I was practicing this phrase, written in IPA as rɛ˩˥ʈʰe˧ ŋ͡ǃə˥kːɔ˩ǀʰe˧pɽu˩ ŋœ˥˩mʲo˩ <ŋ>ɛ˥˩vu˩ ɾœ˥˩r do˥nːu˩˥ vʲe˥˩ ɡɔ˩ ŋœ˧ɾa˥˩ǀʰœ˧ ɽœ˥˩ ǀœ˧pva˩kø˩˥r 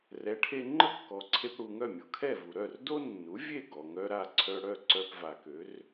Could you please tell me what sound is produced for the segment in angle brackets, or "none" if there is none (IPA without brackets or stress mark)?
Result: kʰ